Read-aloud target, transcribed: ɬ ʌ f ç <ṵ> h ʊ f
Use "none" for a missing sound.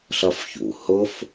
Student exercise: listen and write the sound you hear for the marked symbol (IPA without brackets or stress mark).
ṵ